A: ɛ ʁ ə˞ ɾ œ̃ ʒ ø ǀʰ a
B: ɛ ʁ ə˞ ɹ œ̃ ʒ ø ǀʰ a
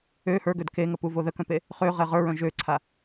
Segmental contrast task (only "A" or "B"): B